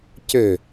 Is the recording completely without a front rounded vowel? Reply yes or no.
no